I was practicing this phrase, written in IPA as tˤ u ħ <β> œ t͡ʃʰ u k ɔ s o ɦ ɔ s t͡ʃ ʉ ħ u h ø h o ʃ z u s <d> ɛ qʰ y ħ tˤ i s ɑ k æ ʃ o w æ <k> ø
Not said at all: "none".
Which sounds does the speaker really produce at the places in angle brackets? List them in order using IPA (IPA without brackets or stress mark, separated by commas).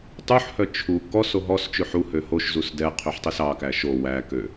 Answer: h, d, k